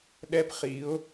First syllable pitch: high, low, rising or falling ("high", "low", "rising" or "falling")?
high